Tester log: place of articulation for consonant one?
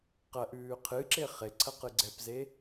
uvular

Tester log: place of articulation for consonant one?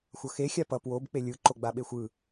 velar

